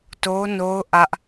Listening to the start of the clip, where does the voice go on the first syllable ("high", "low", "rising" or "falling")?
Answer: high